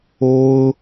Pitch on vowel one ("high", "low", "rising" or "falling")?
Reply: high